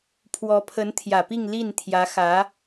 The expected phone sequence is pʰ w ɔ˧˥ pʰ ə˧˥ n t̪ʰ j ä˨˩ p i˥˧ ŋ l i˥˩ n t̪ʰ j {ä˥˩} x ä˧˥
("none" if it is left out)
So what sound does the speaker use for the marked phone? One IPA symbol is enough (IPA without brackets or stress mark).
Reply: ä˧˥